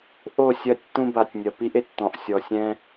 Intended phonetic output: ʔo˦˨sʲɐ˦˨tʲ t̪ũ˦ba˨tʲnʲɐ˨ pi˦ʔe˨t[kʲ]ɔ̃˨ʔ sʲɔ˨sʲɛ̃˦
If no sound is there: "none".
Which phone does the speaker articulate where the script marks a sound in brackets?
t̪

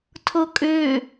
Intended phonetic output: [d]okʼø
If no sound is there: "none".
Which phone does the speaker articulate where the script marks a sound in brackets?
tʰ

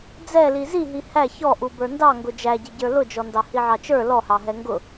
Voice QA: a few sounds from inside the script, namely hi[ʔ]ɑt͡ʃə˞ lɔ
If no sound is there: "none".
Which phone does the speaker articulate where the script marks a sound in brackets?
ʕ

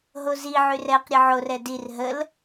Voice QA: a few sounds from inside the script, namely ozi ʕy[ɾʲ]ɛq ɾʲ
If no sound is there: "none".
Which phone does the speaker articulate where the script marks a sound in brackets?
r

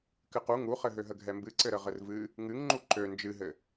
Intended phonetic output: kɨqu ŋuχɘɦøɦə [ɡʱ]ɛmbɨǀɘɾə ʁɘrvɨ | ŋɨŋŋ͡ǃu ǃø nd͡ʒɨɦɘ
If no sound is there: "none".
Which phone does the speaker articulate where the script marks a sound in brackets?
ɡʱ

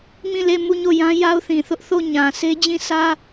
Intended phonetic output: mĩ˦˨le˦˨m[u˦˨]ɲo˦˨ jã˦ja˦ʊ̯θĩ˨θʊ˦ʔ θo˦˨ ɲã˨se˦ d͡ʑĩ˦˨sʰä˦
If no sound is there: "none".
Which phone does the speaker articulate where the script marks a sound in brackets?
u˦˨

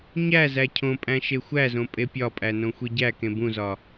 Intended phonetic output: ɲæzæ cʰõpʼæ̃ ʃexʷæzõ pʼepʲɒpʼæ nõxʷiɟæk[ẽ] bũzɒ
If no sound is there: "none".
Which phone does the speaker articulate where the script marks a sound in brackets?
ẽ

